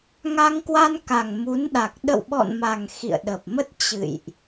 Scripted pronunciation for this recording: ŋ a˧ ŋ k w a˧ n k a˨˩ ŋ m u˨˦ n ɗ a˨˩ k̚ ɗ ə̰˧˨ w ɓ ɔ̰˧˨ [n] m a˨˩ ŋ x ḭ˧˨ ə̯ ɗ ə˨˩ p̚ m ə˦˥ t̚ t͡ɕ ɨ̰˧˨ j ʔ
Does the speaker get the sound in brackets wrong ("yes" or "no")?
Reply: no